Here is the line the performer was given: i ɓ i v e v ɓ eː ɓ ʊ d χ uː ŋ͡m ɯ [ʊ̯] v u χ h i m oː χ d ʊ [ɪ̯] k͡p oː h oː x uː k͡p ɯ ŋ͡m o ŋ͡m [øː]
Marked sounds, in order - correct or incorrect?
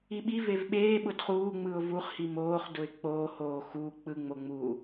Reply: correct, correct, incorrect: uː

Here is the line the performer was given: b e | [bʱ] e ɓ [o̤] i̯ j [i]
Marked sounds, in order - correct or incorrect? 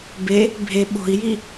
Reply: correct, correct, correct

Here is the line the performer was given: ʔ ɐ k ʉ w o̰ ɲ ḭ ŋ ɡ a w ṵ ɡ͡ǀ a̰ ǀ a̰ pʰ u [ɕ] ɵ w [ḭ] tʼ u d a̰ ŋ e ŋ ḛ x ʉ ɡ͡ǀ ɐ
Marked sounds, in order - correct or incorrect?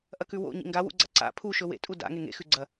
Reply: incorrect: ʃ, incorrect: ḛ

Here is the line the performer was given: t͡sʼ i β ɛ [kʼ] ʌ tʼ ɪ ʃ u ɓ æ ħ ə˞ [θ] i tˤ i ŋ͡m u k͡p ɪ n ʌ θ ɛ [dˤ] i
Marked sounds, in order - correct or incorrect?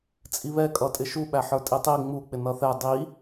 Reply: correct, incorrect: tʼ, correct

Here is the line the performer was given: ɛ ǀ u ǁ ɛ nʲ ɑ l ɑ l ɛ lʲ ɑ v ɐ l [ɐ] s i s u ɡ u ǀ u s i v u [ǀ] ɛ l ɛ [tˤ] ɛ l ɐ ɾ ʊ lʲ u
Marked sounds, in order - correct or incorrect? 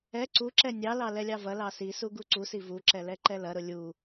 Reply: incorrect: ɑ, incorrect: ǁ, incorrect: ǃ

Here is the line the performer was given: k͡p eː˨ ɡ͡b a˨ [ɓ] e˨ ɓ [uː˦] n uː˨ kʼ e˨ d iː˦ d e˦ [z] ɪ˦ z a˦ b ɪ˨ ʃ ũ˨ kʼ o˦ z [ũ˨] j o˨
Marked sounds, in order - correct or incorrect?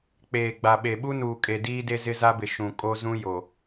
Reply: correct, incorrect: u˦, correct, incorrect: ũ˦

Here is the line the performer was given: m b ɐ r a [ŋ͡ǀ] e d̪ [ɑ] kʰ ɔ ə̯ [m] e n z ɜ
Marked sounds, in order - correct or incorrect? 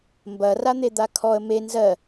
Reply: incorrect: n̪, incorrect: a, correct

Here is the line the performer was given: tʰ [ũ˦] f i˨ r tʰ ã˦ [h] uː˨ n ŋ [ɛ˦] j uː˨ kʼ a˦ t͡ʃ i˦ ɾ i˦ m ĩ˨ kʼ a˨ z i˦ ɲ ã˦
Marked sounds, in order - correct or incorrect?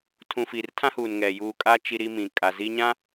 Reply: incorrect: ũ˨, correct, incorrect: ɛ˨

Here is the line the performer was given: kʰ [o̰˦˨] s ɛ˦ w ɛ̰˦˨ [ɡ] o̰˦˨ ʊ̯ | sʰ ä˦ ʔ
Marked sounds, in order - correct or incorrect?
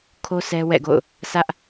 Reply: incorrect: o˦, correct

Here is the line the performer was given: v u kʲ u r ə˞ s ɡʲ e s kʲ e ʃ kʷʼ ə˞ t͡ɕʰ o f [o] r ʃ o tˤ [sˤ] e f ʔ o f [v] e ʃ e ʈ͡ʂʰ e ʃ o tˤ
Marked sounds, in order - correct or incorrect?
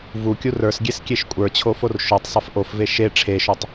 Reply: correct, correct, correct

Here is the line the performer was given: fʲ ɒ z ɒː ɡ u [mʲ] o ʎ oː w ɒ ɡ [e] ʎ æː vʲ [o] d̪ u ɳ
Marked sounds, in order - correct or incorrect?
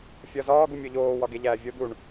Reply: correct, correct, correct

